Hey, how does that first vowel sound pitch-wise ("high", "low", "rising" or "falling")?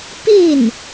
falling